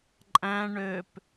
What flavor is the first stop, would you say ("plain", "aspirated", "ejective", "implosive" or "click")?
click